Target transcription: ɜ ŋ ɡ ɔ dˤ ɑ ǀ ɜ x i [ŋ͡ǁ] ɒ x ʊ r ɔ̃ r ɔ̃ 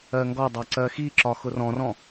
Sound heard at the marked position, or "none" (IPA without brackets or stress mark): ǁ